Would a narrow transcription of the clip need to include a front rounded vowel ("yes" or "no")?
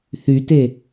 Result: yes